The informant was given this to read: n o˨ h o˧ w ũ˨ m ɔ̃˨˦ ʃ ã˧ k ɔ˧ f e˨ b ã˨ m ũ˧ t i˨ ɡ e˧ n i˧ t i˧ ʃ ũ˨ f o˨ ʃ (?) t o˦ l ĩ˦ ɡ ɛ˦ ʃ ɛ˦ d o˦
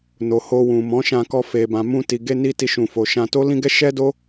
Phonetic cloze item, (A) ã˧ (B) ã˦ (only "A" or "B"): A